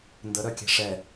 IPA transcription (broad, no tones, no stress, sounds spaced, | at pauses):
n d ə ɾ œ kʲ ɛ̤ ʂ ɛ